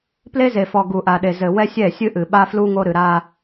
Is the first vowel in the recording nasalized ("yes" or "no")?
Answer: no